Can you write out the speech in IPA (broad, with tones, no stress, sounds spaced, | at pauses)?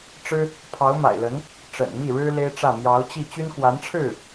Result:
ʈ͡ʂ ɻ̩˥ | pʰ ɑ˧˥ ʊ̯ m a̰˨˩ ɪ̯ l ə˧˥ n | ʈ͡ʂ ə̰˨˩ n m i˥˩ ɻ ɻ̩˥ l e˥ ɪ̯ ʈ͡ʂ ä˥˩ m j ɑ˧˥ ʊ̯ t͡ɕ i˥˩ t͡ɕ y˥ n k w a˧˥ n ʈ͡ʂʰ ɻ̩˥˩